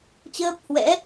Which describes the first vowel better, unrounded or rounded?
unrounded